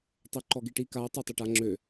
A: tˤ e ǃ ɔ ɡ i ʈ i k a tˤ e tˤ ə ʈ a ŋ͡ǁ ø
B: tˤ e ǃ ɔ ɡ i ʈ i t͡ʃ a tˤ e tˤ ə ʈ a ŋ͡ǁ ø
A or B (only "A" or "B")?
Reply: A